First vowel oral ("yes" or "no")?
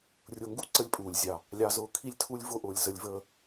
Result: yes